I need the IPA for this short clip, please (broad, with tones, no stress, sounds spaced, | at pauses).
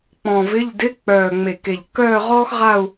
k͡p ɔ̃˨˩ v ɪ˧˥˧ ʎ d ɪ˧˥˧ k͡p œː˨˩ ŋ͡m e˨˩ k e˨˩ ʎ k œː˥˧ ʁ ɔː˥ x ʁ a˥˧ u̯